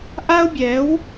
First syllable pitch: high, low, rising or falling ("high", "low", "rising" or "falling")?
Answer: high